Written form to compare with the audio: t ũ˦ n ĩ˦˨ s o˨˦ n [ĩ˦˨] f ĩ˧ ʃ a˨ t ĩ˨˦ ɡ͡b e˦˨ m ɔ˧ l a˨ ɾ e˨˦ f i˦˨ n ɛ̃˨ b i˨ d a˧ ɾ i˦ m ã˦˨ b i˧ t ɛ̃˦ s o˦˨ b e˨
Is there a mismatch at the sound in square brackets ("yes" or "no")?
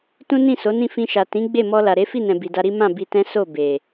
no